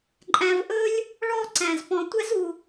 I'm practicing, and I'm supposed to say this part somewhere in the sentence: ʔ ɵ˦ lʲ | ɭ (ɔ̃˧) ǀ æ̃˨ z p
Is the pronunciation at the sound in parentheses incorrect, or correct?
incorrect